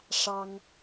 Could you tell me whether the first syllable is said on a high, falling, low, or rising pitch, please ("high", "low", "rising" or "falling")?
high